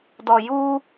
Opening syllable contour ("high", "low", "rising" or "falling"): low